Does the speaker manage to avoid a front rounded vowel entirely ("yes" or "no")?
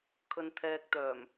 no